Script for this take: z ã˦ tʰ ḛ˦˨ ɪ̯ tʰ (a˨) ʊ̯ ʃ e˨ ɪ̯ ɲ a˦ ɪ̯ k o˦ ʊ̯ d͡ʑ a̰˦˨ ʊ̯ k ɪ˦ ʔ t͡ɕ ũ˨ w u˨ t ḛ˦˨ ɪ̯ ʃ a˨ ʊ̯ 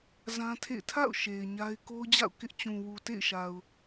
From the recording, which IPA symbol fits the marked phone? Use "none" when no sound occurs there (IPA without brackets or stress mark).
a̰˦˨